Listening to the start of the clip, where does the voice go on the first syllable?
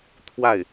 falling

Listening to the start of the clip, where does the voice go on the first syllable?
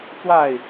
falling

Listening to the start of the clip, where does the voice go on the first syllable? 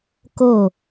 falling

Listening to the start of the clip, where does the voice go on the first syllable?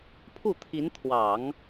falling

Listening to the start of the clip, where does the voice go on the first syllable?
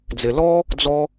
low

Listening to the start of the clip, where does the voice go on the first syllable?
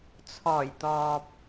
low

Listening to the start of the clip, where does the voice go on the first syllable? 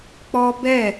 high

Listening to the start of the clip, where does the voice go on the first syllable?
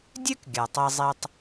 high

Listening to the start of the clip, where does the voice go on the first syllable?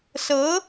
rising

